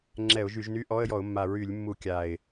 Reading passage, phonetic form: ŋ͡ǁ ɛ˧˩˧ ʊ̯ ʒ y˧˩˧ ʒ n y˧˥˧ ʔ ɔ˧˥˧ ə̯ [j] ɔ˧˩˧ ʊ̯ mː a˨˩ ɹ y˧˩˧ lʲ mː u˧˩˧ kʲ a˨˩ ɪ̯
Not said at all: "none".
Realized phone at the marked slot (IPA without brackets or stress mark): j